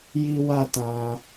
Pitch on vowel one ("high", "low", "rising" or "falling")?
high